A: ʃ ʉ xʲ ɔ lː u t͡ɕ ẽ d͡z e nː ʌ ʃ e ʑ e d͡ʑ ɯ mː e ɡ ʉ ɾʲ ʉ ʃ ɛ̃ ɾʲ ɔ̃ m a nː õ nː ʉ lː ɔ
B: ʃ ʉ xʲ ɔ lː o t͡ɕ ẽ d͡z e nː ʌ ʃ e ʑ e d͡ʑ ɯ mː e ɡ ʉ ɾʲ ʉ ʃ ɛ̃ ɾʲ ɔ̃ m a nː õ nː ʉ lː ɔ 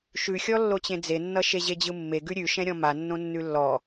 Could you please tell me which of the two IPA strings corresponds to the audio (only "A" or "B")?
B